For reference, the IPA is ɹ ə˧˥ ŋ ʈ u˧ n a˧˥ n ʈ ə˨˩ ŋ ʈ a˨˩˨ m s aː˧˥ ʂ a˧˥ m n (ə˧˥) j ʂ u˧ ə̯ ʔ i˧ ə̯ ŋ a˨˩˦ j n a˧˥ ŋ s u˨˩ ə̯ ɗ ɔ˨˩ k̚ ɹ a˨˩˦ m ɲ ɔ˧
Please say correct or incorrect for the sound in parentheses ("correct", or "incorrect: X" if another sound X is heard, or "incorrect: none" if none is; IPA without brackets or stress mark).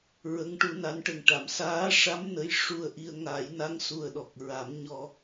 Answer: correct